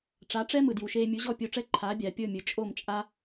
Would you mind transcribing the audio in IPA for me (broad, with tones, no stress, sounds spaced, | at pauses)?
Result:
ʈ͡ʂ a˩˥ ʈ͡ʂ ɛ˥ m ɯ˩ d j u˩ ʃ eː˧ mʲ u˩˥ ʑ ɔ˥˩ pʲ o˧ ʈ͡ʂ ɛ˥ ǃʰ aː˩˥ bʲ aː˩ pʲ ɤ˥˩ mʲ ɯ˩ t͡ʃʼ o˥˩ m t͡ʃʼ a˥